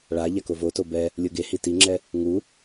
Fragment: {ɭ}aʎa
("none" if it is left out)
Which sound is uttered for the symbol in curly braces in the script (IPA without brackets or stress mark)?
ɭ